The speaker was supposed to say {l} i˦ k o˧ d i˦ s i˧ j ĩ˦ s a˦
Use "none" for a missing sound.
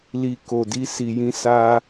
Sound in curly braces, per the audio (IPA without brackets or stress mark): l